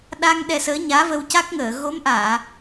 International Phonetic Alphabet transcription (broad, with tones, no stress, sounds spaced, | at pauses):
ɗ a˧ ŋ ɗ ɛ˧ s əː˧˥ ɲ aː˧˥ v ə˧ w c a˦˥ k̚ ŋ əː˨˩˨ ɣ o˧˥ m ʔ aː˨˩˨